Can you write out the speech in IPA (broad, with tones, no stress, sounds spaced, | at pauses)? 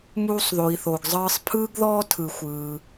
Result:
m uː˧ sˤ ð o˨ i̯ θ o˨ ɡ zˤ ɯː˧ sˤ pʰ ɯː˦ ɡ ð ɔː˦ tʰ ɯ˧ xʷ ɯː˧